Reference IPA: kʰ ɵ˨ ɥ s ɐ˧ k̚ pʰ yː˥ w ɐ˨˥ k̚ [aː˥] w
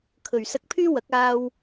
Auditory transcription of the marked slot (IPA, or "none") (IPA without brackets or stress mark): aː˧